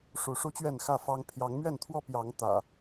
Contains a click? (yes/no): no